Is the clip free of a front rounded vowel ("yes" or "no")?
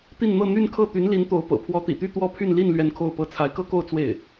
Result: no